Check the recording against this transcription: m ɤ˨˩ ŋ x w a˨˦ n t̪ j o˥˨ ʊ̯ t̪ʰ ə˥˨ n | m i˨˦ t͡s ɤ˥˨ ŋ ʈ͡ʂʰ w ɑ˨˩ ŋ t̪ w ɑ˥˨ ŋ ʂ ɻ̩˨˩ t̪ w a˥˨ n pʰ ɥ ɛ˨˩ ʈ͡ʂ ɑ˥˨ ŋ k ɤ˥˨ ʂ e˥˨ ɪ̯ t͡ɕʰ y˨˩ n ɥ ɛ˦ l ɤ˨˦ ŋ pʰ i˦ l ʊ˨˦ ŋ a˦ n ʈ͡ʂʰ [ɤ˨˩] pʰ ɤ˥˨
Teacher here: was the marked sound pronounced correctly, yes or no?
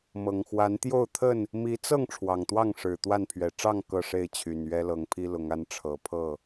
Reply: yes